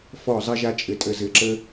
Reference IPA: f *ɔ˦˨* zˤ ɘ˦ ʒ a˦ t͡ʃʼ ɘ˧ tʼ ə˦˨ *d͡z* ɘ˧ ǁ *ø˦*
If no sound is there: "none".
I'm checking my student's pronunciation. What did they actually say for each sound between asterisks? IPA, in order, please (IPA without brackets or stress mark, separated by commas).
ɔ˦˨, z, ə˦